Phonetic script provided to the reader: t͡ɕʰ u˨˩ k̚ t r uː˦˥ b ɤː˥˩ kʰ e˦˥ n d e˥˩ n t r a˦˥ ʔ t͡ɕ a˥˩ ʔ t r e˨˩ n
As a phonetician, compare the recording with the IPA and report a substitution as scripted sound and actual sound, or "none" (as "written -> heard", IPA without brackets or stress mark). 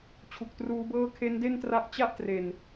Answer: none